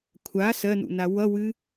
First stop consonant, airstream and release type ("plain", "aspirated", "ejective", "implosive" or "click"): aspirated